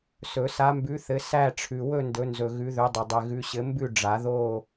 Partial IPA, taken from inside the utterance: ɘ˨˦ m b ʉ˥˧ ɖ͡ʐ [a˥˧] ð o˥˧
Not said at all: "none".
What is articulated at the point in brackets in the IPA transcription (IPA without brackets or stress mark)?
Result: a˨˩˦